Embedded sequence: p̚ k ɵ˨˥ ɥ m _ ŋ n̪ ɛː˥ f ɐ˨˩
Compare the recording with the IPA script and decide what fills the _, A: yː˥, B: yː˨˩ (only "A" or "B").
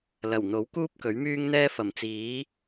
A